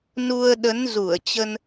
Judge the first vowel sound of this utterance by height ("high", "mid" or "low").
high